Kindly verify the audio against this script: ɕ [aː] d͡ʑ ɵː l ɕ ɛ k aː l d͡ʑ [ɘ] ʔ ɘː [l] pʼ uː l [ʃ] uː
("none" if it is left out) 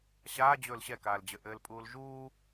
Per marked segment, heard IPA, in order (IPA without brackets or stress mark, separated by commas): aː, ɘ, l, ʒ